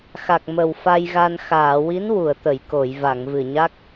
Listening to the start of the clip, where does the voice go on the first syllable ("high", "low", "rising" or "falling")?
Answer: low